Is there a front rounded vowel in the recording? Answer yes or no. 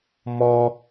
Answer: no